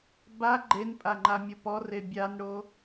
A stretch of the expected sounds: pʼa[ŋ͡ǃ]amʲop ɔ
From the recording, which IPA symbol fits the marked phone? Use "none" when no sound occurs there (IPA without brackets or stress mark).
ŋ͡ǃ